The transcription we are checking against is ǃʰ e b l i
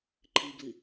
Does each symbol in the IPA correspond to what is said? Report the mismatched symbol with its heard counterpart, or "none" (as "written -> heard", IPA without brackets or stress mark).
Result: e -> i